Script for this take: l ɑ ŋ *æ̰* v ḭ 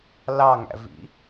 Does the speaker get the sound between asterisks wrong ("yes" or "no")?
no